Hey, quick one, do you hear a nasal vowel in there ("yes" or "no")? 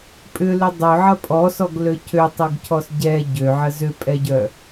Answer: no